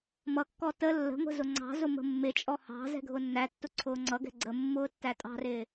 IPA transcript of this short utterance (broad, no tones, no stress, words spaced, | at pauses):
mʌkːɔ tə lːə̤ŋʷə̤ zʊŋ͡ǀɑ̤zʊ mə̤mːɪt͡ʃʼɔ hɑ̤ zɛ̤ɡʱʊnːætːʊ ǀʰʊːŋ͡ǀʌɡɛ̤ ɡ͡ǀə mːʊːtːætʼɑ̤rɪː